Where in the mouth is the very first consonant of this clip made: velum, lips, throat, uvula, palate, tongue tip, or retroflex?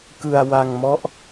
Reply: velum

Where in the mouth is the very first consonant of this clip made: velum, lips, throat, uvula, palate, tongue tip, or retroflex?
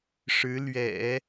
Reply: retroflex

